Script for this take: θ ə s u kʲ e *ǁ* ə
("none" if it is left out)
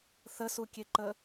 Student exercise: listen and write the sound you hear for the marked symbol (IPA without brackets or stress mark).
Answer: ǃ